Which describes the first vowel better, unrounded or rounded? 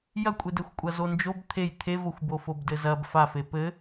unrounded